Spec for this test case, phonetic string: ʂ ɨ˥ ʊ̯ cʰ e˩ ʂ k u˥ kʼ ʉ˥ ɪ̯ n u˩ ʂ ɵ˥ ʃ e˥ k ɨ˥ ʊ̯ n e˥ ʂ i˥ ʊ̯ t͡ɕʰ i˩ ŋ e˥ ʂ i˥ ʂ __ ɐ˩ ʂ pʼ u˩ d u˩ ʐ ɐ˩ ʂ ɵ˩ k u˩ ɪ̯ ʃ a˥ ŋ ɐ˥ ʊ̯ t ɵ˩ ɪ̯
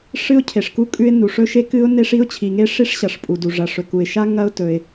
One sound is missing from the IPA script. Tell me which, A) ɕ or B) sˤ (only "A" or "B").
A